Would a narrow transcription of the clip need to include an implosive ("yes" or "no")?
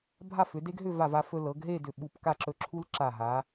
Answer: yes